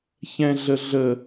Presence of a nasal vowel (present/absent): present